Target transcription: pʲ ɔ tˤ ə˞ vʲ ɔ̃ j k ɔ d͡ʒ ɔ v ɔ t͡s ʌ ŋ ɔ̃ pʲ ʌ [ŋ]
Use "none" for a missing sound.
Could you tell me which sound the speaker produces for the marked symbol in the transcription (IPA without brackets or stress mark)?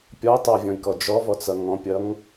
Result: ŋ